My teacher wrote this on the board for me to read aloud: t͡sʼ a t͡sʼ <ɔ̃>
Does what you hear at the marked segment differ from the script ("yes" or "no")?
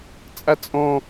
no